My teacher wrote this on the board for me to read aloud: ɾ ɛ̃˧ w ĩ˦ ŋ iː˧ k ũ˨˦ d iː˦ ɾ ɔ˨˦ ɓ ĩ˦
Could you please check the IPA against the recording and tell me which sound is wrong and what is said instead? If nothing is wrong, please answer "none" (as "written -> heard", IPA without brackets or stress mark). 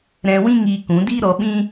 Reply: none